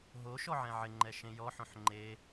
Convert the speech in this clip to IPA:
ɦo ʃɔʕɛ̃ʕɪŋ͡ǃɛ ʃẽjɔħõħ ŋ͡ǃe

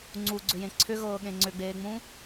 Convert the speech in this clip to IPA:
ŋ͡ǀuɡ͡ǀʏjẽ ǀʰʏɣɤːɠẽ ŋ͡ǀʏɡ͡beːŋ͡mũ

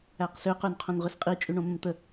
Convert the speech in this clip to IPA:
æqsʏ qynqʰõnʁʏsqʼi t͡ʃʼyɳõmə̃mt̪ə

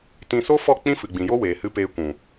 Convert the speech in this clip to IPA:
tĩ˧ so˦fɔ˦˨ k͡pĩ˦fɨ˨ɡ͡bĩ˨ jo˦weː˨hɨ˧ peː˧kʷũ˨

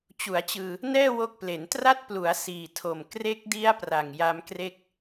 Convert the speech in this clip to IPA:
t͡ɕu˩˦a̯t͡ɕɯː˧ | nɛː˥˩wo˦˥k̚ple˩˦ntra˥˩t̚ plu˩˦a̯ siː˨˩tʰo˨˩m kre˦˥k̚di˦˥a̯ pra˨˩ŋja˦˥mkre˥˩k̚

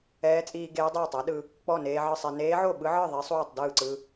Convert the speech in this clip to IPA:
ɛː˧˥t͡sʼiː˧ ɡeː˧˥dˤeː˥˩tˤa˧˥ɗɯ˧ | k͡pɔ˥˩neː˧ ʕɯ˥˩sˤe˧ neː˧˥ʕo˥˩ɓɯ˧˥ʕɯ˥˩ ðˤi˧˥sˤuː˥˩tˤdɯː˥˩ǀɯ˧

